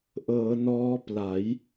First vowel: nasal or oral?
oral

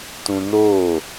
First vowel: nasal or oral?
nasal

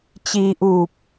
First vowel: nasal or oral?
oral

